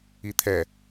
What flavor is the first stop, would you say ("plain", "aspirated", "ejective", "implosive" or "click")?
aspirated